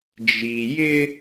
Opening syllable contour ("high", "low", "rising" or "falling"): low